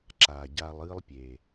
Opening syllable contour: low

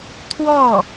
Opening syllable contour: falling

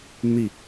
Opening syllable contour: falling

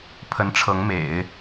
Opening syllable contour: rising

